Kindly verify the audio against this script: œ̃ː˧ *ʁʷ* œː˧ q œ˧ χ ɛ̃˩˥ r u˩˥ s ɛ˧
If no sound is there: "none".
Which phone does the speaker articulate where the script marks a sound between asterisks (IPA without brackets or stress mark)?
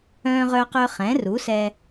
ʁ